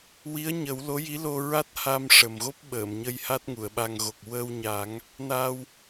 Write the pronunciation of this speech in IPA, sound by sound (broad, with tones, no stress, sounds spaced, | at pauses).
w i˧˥ ə̯ ɲ ə˨˩˦ w l o˧˥ j i˧˥ l o˧ ɹ a˦˥ t̚ h a˧ m ʂ ə˨˩ m ɣ o˦˥ p̚ ɓ əː˨˩˨ m ɲ ə˧ j h a˦˥ t̚ ŋ u˨˩˨ ə̯ ɓ a˧ ŋ ɣ o˨˩ k̚ w ə˧ w ɲ a˨˩˦ ŋ | n a˧ w